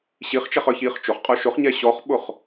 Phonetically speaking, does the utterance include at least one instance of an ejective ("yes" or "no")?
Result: yes